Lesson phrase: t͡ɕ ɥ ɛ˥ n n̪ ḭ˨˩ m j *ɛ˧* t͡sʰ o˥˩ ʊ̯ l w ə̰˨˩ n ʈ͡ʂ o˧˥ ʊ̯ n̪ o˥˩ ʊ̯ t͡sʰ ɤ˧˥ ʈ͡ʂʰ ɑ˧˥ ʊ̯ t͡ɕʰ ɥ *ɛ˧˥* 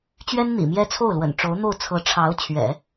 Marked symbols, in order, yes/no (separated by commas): no, no